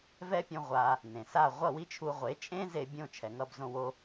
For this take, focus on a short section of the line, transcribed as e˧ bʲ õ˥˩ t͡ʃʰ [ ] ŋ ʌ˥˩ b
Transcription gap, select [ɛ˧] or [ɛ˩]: ɛ˩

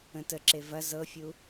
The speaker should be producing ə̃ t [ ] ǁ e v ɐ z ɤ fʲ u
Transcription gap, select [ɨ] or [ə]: ə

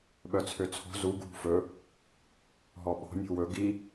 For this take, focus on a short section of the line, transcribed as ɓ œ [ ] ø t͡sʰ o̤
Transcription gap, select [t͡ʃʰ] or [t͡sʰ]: t͡sʰ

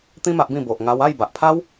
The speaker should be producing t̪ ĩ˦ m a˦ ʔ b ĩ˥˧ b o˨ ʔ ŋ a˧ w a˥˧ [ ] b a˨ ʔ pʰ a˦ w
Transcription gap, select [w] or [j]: j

